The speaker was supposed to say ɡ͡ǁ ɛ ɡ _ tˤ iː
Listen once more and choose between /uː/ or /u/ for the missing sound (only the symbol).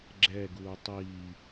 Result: uː